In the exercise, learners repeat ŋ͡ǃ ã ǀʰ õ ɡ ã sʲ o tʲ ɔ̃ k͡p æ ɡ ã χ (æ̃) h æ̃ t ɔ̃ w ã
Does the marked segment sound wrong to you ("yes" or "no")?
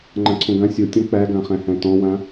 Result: no